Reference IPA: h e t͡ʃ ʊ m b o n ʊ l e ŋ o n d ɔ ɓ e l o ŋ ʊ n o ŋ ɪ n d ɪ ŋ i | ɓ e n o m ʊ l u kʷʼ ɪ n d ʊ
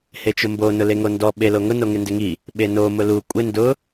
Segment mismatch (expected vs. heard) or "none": none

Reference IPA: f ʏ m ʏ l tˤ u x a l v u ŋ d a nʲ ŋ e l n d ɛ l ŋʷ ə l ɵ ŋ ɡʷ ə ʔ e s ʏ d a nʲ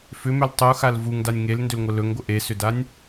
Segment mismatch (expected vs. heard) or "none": ɛ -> ʏ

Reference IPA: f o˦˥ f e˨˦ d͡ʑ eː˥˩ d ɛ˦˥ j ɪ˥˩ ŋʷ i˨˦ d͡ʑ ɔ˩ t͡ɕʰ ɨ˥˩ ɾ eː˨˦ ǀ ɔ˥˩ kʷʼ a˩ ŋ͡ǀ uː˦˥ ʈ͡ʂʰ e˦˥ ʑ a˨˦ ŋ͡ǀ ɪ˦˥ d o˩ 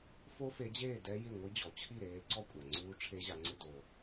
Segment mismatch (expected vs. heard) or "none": ɨ˥˩ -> i˥˩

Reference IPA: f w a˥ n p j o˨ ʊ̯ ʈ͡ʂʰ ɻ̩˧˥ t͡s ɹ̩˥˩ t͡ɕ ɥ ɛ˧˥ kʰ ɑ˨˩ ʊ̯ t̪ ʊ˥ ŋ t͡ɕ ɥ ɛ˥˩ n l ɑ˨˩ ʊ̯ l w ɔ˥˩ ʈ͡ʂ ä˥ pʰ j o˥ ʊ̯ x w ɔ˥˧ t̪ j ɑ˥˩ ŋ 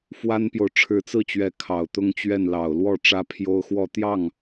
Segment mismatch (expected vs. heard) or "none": none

